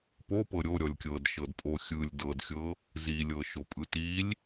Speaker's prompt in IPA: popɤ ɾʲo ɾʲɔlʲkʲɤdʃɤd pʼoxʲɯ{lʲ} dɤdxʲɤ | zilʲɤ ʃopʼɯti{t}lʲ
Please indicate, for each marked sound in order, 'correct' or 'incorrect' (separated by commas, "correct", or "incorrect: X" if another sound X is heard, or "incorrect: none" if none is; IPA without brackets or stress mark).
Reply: correct, incorrect: none